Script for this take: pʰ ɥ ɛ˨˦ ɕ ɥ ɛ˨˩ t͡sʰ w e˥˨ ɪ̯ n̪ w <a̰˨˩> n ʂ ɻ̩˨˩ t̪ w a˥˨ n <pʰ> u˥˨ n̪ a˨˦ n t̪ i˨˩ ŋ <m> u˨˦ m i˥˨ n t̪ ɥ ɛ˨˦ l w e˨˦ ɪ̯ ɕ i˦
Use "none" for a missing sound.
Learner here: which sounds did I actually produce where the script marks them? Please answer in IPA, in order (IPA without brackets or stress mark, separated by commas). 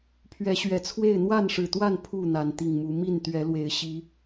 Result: a˥˨, pʰ, m